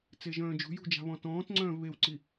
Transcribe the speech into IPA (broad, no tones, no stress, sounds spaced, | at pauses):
t͡s e ʒ œ̃ː d͡ʒ ṳ j ṳ d͡ʒ a̤ β ɔ̃ t ɔ̃ː t ŋ͡ǀ œ̃ː v β e w ǀ i